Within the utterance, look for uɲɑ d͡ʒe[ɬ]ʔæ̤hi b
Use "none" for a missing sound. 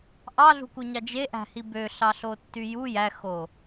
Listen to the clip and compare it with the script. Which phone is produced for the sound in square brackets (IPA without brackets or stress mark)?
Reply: none